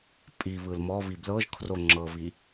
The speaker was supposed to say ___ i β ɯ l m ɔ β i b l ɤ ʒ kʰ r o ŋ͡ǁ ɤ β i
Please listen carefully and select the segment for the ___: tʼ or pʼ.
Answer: pʼ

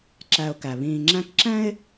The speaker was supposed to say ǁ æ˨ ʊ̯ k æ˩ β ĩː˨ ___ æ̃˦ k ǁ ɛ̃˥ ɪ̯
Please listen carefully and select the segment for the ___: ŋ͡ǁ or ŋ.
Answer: ŋ͡ǁ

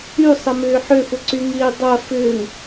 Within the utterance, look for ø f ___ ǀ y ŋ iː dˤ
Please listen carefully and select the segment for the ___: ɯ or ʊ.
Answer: ʊ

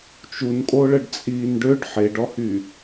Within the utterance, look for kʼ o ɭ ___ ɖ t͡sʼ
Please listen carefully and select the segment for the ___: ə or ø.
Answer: ə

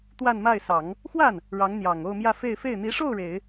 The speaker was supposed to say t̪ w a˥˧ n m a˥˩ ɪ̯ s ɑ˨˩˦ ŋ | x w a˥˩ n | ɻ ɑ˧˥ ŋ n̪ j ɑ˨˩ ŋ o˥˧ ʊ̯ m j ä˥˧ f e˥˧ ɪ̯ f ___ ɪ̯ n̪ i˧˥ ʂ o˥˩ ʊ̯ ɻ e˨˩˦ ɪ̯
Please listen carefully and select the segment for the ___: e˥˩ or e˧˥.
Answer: e˥˩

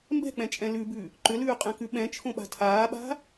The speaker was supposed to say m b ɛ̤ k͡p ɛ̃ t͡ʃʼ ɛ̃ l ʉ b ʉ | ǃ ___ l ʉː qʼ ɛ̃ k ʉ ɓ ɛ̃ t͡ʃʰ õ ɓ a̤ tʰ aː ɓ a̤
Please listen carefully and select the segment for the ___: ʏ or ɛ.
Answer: ʏ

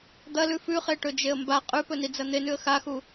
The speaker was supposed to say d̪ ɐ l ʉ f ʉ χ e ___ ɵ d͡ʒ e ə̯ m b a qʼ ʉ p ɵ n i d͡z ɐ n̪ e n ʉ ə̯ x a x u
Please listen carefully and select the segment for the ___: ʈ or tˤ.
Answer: ʈ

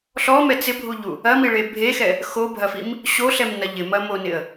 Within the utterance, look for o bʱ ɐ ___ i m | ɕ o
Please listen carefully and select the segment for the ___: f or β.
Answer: f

